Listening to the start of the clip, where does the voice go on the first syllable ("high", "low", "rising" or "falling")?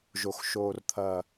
low